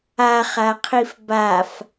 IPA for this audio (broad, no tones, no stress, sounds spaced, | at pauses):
a χ a qʰ i f b a f